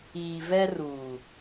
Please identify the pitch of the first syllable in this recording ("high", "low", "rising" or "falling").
low